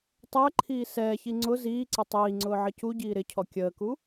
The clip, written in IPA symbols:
tˤ əː ǃʰ iː s ɛː ç i ŋ͡ǀ ʊ z iː ǀ ɪ tˤ iː ŋ͡ǀ ʊː ʕ ə c u ɟ iː ɾ ɪ cʰ ɔ kʲ əː k u

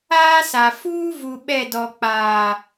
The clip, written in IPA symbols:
aː˦ s a˨ f uː˦ v u˨ ɓ ɛ˦˨ d ɔ˨ k͡p aː˨

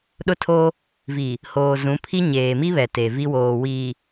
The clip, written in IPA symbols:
ɗ ʊ˦ tʰ oː˦ | v iː˨ | h oː˨ z ũ˨˦ pʰ i˦ ɲ eː˨ m i˦ β ɛ˨ t e˨ v i˦ w oː˨ w iː˨

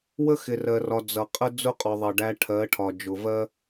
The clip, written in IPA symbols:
w ə˦ x ɪ˨ r ɜ˨ r ɒ˨ d͡z ʌ˨ qʼ ə˦ d͡z ʊ˦ qʼ ɔ˨ ðˤ ʌ˨ ɖ æ˧ ʈʰ ɜ˨˦ ʈʰ ɒ˨ d͡ʒ ʊ˨ v ɜ˦

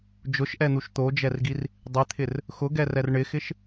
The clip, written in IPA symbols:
d͡ʒ ʊ ʃ ʔ ɛ n̪ u ʃ t̪ o d͡ʒ ɛ r ɡ i r | dˤ ɪ t̪ʰ ɪ r | x ʊ ɡ ɛ r ɛ r ɳ ɪ x ɪ ʃ

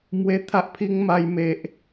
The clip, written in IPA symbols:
m w e˦ t̪ʰ a˦ ʔ pʰ i˦ ŋ m a˦ j m e˦ ʔ

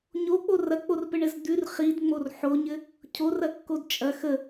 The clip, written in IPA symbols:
ɲ o k͡p o r ɐ k͡p o r p ɘ ɳ ɘ z d̪ ʉ r χ i d ŋ͡m o r ħ o ɲ ɘ | cʰ o r ɐ kː o d t͡ʃʼ ɐ x ə

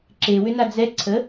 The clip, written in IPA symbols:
ǁ e w ʏ n a d͡z ɛ ǀʰ ə

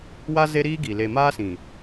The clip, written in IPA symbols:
w a˦ z e˦ ɾ iː˦ ɡ i˨ l e˨ m aː˦ s ĩ˨

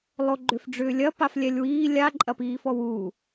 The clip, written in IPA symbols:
lˠ o ɡ͡ǃ ʏ f ɖ͡ʐ ʏː lʲ ɐ p a f lʲ ɛ lʲ w iː lʲ a ǃʼ ɐ p iː f ɔ w uː

